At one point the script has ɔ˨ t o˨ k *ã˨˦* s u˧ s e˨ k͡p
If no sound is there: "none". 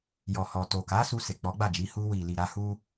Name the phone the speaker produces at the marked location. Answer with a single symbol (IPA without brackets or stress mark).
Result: a˨˦